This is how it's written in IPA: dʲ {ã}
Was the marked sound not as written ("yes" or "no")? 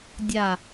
yes